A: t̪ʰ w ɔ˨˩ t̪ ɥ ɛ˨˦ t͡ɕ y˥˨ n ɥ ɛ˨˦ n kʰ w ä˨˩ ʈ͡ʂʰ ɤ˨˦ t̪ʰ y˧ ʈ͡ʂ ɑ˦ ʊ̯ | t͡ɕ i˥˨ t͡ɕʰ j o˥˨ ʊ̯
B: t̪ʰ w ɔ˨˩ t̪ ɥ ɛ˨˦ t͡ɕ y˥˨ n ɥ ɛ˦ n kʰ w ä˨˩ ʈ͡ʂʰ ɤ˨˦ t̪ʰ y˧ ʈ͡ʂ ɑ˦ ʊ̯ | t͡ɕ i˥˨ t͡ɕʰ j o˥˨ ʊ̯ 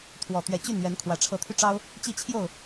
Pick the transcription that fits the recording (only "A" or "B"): A